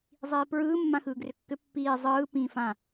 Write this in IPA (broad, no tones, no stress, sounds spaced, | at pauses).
zˤ iː p ɹ ɯː mː ã x ɯː ɡ r ʏ kː ʏ pː iː zˤ ɯː p ĩː f ã